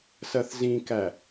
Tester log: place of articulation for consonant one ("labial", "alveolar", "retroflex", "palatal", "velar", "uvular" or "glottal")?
alveolar